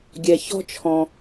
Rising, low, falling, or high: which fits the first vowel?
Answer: low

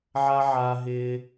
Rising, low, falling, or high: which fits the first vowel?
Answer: high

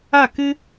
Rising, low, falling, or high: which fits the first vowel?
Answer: falling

